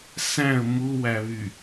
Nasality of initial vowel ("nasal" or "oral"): nasal